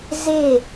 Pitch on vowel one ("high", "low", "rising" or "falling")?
falling